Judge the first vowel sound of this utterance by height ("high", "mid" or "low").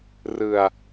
high